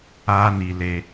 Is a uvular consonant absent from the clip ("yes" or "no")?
yes